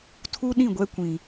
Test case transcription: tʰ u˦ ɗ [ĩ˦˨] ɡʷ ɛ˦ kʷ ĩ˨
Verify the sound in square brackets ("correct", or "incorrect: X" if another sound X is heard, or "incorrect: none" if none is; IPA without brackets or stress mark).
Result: correct